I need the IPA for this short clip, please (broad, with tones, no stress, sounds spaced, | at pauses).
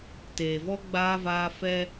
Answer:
t eː˨ v ɔ˦ ɡ͡b aː˦ v aː˦ f ɛ˦